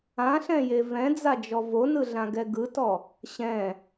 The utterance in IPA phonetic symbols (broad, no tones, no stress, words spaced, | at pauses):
ãɬɛ̃je vɛ̃d͡zad͡ʒɔ vonɯɮãɡɛ ɡɯtɔ | ɕɛ̃